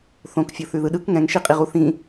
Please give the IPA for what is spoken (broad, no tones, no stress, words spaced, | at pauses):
θõk fʲoθʉðɯɗɯk ŋɛ̃ŋʃiqʼiʁu θĩ